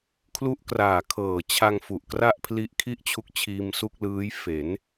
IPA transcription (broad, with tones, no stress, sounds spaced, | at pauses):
kʰ l u˦˥ ʔ k r aː˨˩ kʰ ɤː˨˩ t͡ɕʰ a˧ ŋ f u˨˩ ʔ k r a˥˩ ʔ pʰ l i˦˥ ʔ kʰ i˥˩ ʔ t͡ɕʰ u˦˥ k̚ t͡ɕʰ iː˧ m s u˥˩ k̚ l ɯː˦˥ j f e˩˦ n